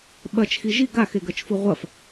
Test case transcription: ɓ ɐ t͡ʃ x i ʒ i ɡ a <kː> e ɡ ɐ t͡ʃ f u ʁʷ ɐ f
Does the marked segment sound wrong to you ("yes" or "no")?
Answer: yes